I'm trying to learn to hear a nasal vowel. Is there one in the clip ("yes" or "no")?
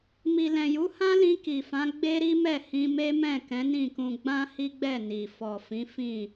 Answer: yes